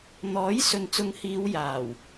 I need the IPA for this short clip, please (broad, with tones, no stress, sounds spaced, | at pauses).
n̪ ɔː˨˥ j s ɵ˨ n t͡s ʊ˨˧ ŋ h iː˨˧ w j aː˨˩ w